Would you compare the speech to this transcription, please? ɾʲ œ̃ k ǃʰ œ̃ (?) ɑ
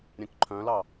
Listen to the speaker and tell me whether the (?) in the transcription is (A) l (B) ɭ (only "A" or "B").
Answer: A